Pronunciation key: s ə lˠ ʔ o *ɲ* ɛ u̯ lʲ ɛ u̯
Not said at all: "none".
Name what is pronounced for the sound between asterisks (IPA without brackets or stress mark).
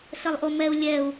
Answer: m